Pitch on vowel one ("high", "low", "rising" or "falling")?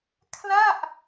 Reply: falling